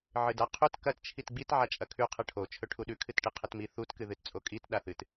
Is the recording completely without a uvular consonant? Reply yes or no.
no